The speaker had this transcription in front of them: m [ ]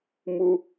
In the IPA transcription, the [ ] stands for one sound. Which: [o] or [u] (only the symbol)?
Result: u